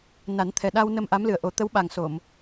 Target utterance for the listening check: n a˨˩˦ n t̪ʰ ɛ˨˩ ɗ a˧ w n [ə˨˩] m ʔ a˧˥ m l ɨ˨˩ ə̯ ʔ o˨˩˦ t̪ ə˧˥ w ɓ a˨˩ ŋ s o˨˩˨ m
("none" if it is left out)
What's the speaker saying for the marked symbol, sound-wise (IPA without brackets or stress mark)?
ə˧